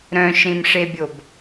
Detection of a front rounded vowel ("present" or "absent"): present